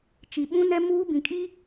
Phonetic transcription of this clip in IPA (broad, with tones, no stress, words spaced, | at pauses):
t͡ʃi˨ɓũ˦ nɛ˦muː˦ bĩ˨kʼi˦